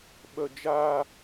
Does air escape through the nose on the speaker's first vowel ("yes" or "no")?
no